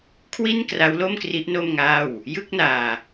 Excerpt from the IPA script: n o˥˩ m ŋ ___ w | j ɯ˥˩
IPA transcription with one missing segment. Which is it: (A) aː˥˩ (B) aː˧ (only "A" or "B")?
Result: A